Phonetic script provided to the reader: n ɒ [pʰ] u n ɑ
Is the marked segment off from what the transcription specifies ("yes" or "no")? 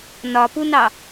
yes